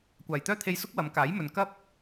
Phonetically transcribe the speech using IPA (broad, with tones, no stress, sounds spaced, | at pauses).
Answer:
kʷ aː˨˩ j t̪ œː˥ t̪ʰ e˧ j s ʊ˥ k̚ w ɐ˨˧ m k aː˨˥ j m ɵ˨ n k ɐ˥ p̚